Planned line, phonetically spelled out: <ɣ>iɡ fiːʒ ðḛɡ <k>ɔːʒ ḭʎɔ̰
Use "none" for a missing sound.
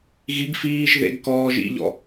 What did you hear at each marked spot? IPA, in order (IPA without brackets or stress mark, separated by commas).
ɣ, k